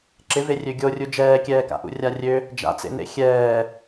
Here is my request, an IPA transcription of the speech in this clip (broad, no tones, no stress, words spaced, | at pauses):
ǁɪverʲø ɡʲorʲu d͡ʒɛːkʲɛːka̰ʔṵ rʲarʲø | d͡ʒa̰t͡sḛnḛ xʲɛː